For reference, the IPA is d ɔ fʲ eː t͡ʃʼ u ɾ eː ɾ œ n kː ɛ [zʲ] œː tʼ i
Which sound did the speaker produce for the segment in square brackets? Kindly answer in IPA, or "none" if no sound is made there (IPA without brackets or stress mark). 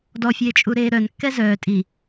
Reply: z